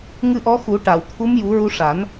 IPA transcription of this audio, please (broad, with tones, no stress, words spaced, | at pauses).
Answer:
ŋɨ˧ʔɔ˧˥xu˨˩˦ ʈa˨˩˨wt̪ʰu˧˥mju˨˩˦ ɹu˧ʂa˨˩˦n